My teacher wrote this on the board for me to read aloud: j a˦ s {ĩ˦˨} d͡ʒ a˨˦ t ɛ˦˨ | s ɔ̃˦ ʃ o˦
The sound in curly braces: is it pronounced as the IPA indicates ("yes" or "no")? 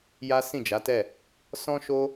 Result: yes